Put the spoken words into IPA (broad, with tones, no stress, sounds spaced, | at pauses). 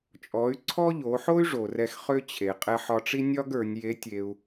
t͡ʃʼ ɔ˩˧ y̯ ǀʰ ɔ˥ ʎ o˩˧ ħ o˥ y̯ ʐ o˩ r ɛ˧ x χ ø˥ t͡ɕʰ e˩ qʼ ɛ˧ ħ ɒ˧ ʈ͡ʂ i˥ nʲ ɒ˥ ɡ ə˞˩˧ nʲ j e˧˥ tʲ e˧ u̯